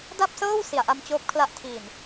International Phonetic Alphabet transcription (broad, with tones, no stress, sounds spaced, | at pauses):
d a˥˩ p̚ s ɤː˥˩ w s i˨˩ a̯ ʔ a˧ m t͡ɕ oː˦˥ p̚ kʰ l a˦˥ ʔ tʰ iː˨˩ n